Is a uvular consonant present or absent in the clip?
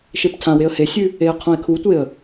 present